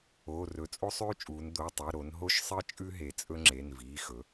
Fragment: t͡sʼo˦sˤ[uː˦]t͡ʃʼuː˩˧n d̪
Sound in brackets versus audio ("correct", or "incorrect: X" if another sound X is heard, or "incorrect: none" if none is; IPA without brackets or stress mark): incorrect: ʉː˦